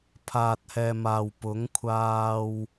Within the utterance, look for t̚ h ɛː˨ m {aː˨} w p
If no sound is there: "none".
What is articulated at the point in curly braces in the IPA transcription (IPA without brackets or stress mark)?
aː˨